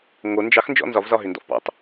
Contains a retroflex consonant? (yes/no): no